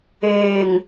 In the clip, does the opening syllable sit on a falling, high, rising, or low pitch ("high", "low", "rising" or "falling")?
low